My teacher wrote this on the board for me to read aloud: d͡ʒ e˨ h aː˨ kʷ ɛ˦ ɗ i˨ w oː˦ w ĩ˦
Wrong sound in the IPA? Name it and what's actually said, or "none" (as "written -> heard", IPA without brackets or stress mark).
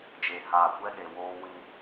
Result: i˨ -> e˨